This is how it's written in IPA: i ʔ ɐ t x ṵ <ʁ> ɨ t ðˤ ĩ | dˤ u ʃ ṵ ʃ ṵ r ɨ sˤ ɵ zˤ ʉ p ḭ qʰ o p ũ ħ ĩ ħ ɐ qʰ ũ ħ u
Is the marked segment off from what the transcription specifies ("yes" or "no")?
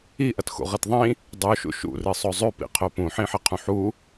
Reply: no